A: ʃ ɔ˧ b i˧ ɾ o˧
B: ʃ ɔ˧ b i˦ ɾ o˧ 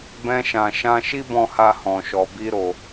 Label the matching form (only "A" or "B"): B